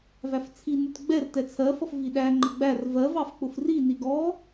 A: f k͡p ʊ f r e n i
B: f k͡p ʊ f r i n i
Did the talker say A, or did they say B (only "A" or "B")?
B